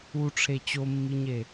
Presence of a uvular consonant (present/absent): absent